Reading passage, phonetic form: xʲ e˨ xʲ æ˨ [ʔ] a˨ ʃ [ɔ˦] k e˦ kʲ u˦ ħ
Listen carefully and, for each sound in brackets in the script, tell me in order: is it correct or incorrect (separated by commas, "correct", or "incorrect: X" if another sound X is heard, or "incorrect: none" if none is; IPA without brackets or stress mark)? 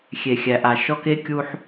correct, correct